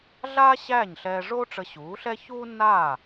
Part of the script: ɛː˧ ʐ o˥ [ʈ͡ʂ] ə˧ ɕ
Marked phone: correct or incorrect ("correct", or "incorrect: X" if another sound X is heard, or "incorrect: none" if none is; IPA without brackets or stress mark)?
correct